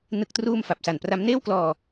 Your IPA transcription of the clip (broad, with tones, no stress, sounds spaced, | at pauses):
n ɯ˦˥ k̚ t r uː˥˩ m f a˨˩ p̚ s a˨˩ n p r a˦˥ m n eː˥˩ w k l ɔː˧